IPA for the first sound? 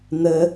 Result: n̪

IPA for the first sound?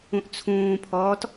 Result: ũ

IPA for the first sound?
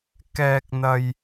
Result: k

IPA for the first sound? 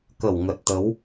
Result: k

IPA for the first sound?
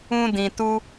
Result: ũ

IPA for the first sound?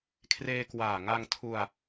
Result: kʰ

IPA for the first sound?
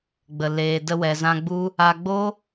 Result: ɡ͡b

